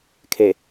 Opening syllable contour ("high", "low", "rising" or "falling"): low